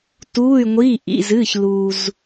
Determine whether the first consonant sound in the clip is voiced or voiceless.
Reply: voiceless